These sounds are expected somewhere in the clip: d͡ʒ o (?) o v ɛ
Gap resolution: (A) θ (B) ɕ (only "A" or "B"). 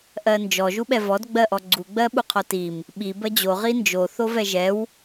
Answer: A